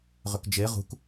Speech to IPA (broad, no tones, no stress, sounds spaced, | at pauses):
ʁ ʏ k d͡ʒ e ʁ ṳ k